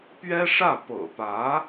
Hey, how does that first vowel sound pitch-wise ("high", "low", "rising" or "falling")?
high